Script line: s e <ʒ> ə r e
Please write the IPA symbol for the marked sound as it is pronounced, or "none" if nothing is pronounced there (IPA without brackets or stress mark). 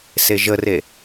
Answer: ʒ